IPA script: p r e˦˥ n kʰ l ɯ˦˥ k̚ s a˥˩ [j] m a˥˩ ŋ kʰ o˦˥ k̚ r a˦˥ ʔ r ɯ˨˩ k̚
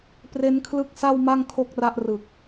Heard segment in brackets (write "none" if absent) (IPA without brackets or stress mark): w